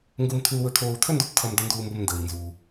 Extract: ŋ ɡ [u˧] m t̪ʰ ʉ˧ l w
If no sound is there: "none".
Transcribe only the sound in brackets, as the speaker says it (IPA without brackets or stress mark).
u˧